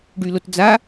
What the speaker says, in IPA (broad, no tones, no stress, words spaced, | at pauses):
ɖylotd͡za